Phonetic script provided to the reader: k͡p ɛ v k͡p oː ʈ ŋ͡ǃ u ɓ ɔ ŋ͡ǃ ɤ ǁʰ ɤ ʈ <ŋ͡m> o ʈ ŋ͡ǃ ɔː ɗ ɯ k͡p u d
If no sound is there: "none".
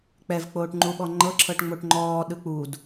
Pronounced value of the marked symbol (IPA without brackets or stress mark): ŋ͡m